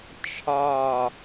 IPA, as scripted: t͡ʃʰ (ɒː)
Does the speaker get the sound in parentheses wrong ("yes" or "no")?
no